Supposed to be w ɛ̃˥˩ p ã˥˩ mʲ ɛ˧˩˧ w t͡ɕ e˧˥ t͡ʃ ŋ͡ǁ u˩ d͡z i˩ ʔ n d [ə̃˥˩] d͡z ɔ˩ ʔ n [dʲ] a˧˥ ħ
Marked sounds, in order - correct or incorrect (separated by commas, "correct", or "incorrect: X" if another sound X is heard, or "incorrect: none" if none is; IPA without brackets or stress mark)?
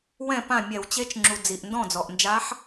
incorrect: ɔ̃˥˩, incorrect: d͡ʒ